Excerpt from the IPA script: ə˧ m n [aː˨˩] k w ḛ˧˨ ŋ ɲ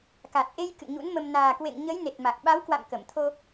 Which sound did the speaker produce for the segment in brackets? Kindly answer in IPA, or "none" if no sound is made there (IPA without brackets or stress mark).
aː˨˩